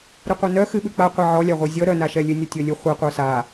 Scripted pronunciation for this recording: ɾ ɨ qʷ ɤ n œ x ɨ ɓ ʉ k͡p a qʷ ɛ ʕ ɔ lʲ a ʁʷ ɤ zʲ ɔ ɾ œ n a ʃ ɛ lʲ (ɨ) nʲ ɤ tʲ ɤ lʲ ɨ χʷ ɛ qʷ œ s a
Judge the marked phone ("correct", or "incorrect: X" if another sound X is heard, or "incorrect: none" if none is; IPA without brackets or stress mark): correct